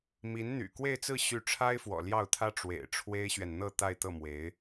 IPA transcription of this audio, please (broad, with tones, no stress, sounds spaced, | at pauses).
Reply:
m i˧˥ n n̪ y̰˨˩ k w e˥˧ ɪ̯ t͡s ɹ̩˥˧ ɕ y˥˩ ʈ͡ʂʰ a˥ ɪ̯ f w ɔ̰˨˩ l j ɑ˥˩ ʊ̯ t̪ʰ ä˥ ʈ͡ʂ w ḛ˨˩ ɪ̯ ʈ͡ʂʰ w e˥ ɪ̯ ɕ ɥ ɛ˨ n n̪ ɤ˥˧ t̪ a˥˧ ɪ̯ t̪ ɤ˥˩ m w e˧˥ ɪ̯